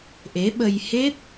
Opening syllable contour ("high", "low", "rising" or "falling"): rising